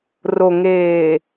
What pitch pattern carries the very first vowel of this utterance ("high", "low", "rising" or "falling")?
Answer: low